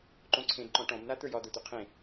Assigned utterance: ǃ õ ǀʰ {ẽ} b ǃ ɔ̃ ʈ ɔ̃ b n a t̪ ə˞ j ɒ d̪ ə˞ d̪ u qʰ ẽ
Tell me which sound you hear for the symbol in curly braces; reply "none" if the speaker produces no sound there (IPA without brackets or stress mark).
ẽ